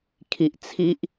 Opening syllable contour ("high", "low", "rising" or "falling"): low